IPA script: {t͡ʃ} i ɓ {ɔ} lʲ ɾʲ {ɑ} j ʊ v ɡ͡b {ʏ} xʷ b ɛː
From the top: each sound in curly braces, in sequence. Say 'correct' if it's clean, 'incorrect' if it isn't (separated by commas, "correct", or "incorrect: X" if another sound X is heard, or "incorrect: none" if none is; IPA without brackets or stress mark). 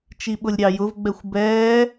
correct, incorrect: ʊ, correct, incorrect: ɛ